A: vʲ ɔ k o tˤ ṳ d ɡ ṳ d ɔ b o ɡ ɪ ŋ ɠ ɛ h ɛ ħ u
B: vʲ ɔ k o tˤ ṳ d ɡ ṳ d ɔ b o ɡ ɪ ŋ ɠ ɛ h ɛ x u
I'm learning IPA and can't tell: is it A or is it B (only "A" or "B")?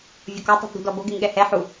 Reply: A